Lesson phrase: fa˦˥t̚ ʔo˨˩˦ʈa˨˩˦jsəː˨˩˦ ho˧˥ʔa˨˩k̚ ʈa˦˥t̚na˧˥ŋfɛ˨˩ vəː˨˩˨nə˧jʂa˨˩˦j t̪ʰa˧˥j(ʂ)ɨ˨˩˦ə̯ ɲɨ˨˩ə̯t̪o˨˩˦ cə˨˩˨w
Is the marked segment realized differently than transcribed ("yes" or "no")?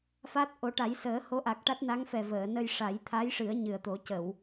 no